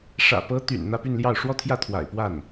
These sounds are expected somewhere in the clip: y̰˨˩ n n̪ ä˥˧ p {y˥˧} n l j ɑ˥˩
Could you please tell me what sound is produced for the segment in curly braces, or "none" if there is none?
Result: y˥˧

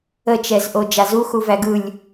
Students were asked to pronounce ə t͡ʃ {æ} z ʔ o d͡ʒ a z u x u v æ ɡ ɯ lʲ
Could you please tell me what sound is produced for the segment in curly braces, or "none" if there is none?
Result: ɛ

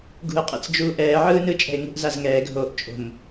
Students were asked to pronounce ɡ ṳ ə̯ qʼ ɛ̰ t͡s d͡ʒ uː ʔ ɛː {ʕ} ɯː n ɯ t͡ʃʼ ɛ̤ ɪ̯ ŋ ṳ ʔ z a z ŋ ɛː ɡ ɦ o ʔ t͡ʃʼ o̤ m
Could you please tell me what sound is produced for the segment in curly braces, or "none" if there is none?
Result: ʕ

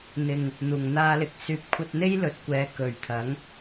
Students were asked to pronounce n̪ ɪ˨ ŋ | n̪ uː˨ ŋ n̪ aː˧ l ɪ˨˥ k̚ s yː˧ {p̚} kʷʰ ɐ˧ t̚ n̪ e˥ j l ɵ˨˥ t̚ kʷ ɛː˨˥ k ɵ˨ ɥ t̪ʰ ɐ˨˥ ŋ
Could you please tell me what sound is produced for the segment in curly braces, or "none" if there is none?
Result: p̚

